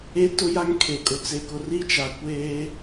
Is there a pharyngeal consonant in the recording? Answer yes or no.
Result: no